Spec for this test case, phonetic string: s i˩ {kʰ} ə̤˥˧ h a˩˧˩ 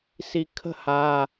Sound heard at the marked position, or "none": kʰ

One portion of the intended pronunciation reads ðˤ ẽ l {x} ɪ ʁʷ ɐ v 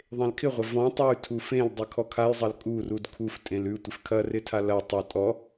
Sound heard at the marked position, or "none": kʰ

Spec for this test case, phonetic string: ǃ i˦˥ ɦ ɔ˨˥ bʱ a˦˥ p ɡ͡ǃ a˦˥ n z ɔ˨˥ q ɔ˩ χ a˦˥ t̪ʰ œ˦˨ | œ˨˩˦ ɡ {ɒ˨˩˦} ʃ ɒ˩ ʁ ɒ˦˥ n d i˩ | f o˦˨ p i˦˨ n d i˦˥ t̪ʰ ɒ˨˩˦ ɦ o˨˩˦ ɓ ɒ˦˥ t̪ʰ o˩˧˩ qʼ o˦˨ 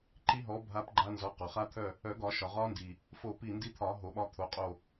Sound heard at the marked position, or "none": ɒ˨˩˦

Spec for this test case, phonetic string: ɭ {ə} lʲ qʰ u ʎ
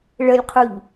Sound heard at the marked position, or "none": ə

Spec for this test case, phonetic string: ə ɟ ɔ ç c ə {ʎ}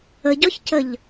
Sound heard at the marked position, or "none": ʎ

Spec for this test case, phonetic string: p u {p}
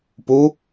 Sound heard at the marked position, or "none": none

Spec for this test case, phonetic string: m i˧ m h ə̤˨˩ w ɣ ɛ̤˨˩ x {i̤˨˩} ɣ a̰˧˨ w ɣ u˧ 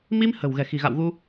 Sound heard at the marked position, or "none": i̤˨˩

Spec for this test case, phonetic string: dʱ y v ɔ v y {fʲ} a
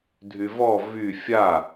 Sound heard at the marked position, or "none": fʲ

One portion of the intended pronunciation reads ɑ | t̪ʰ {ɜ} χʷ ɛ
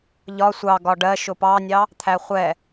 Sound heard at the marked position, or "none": æ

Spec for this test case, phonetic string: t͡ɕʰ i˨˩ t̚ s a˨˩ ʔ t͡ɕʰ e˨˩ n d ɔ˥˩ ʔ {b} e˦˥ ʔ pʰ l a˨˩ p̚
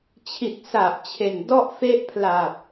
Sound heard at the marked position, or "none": f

